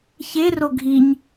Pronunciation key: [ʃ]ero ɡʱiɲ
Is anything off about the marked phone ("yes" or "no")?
yes